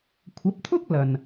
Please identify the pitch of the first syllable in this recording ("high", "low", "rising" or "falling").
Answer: rising